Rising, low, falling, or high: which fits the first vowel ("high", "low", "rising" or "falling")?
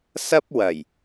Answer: high